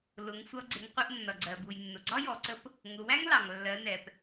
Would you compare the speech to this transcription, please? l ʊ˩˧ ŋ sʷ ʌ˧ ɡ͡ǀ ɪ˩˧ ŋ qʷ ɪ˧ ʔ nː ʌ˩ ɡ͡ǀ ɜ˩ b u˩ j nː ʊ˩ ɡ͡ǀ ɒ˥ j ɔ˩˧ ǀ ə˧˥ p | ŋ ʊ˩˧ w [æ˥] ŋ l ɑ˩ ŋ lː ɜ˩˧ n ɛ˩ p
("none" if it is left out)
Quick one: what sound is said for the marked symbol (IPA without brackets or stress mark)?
æ˥